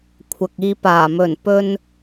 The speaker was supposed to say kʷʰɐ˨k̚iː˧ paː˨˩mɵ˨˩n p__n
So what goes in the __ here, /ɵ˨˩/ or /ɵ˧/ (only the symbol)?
ɵ˧